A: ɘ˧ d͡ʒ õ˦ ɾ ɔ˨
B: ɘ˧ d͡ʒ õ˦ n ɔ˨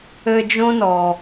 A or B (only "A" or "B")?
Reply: B